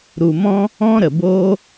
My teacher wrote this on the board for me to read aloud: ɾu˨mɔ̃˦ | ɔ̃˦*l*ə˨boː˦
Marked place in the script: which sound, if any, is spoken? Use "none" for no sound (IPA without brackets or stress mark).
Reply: ɾ